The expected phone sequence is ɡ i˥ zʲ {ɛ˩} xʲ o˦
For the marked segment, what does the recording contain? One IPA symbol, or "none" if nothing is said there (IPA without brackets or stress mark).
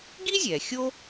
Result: ɛ˩